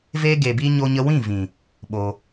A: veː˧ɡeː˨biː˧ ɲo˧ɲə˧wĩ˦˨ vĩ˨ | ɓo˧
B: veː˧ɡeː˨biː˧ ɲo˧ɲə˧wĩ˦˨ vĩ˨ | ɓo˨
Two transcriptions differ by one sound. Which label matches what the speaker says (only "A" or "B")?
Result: A